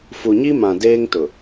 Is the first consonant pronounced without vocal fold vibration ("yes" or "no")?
yes